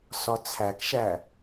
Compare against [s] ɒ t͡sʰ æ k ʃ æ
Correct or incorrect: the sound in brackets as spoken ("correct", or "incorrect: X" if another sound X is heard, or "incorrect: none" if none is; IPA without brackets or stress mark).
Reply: correct